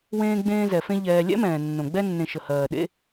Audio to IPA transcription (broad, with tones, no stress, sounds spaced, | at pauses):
w ẽː˦ ɡ͡b ẽː˦ z ɛ˩ f ẽ˦ ʎ ɛː˨ lʲ ɛ̰˥ m ɛ̃ː˩ nː õ˩ ɡ͡b ɛ˦ nː ẽ˨ ʃ ə˩ h ɜː˩ ɗ ḛ˦